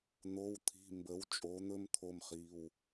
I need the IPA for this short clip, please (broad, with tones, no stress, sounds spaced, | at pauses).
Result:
n̪ o˧˥˧ w t̪ʰ i̤˧˥˧ m b ə˧˥ w t͡ʃʼ o˧˥ n̪ ɵ˥ m t̪ʰ o˥ m χ i˧˥˧ w